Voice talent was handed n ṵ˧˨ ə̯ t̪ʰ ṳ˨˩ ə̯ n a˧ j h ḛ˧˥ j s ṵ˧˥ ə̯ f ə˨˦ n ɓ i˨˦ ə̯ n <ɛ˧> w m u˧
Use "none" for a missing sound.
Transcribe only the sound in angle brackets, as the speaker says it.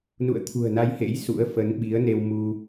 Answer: e˧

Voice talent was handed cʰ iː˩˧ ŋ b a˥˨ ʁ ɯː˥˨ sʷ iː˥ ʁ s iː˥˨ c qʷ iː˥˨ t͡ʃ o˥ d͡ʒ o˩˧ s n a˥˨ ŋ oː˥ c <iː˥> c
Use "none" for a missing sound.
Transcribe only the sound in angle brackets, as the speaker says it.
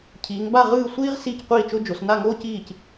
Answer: iː˥˨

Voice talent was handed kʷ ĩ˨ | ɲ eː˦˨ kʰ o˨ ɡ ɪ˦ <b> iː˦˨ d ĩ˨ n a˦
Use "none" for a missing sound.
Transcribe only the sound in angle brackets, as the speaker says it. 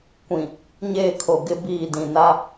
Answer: b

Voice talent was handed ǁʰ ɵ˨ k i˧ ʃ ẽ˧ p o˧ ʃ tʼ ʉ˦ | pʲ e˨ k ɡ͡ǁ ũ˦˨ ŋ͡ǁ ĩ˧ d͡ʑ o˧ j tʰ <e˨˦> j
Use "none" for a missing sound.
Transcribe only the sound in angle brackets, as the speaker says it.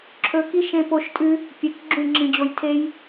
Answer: e˦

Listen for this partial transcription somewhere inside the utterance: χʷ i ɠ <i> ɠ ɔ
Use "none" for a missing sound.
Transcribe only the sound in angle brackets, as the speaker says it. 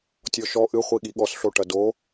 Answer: i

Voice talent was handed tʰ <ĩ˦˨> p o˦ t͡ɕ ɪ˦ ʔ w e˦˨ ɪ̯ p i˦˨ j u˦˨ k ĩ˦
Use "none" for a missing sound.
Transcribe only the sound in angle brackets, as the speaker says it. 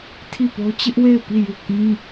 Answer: i˦˨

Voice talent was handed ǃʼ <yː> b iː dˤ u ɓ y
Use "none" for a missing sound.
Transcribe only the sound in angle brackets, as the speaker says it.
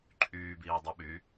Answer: yː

